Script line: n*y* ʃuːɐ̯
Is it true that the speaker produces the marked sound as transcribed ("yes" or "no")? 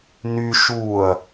yes